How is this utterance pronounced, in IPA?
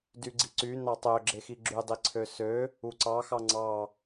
d y ɡ͡ǀ i ǀ y n ɑ tˤ ø ɡ͡ǁ e x i ɡ͡ǁ y dˤ i ǀʰ ø s ø | u ǀ ɑ x ɑ ŋ͡ǀ ɑ

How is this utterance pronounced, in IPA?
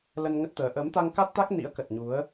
l ə˧ n ŋ ə˦˥ t̚ t̪ əː˨˦ ʔ ə˨˦ m t̪ a˧ ŋ k a˦˥ t̚ t̪ a˦˥ k̚ n ḭ˧˥ ə̯ k ə˨˩ t̚ ɲ u˨˦ ə̯

